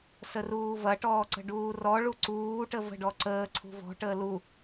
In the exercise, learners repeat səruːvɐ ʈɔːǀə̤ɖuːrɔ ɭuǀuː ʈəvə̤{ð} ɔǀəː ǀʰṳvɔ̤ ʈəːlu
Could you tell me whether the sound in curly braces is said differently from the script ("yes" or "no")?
yes